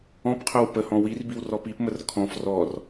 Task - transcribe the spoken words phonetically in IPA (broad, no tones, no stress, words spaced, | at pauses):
ɔ̃pqʰœw pəhɔ̃ wirbiw rɔpipmər kʰɔ̃f rɔr